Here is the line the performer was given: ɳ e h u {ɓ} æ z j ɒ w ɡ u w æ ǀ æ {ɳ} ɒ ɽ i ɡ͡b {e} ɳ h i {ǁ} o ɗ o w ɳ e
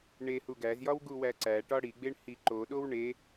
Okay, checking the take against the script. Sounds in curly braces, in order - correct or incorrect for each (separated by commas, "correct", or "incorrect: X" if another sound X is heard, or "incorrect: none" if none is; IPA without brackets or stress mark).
incorrect: ɡ, incorrect: ʈ, correct, incorrect: ǃ